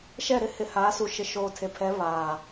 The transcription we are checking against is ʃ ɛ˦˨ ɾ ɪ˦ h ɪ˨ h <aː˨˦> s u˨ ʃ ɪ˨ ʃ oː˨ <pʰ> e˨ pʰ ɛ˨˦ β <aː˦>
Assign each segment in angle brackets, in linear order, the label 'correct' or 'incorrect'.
correct, incorrect, incorrect

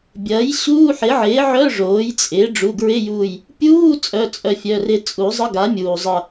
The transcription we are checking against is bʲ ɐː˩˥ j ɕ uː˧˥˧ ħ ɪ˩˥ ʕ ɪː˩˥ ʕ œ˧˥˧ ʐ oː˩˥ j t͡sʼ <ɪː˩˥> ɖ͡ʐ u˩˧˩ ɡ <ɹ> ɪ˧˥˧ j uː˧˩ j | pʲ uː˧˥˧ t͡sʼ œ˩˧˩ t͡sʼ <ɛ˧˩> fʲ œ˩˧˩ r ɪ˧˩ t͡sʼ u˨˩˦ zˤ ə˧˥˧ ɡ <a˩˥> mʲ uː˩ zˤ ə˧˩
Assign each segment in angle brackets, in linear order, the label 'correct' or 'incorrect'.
correct, correct, incorrect, correct

